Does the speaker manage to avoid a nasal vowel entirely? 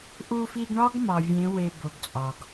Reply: no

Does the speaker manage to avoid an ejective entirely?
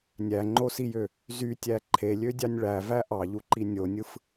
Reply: yes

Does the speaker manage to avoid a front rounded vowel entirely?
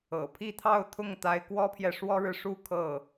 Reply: yes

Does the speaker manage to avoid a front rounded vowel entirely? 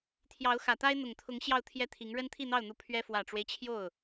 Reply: yes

